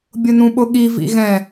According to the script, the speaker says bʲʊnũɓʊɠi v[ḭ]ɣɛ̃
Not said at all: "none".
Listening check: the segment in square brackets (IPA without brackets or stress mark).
ḭ